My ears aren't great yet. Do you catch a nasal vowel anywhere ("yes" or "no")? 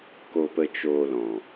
yes